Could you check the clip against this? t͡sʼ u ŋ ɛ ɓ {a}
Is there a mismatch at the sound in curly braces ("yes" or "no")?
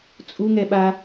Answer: no